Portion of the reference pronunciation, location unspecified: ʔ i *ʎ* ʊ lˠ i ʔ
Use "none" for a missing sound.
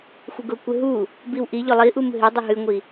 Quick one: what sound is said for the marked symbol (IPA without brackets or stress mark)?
ʎ